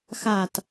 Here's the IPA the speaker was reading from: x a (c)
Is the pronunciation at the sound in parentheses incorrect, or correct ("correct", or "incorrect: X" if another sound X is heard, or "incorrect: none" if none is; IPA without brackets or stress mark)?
incorrect: t